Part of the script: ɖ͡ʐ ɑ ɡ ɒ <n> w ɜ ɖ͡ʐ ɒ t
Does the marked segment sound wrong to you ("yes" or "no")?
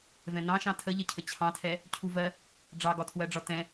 yes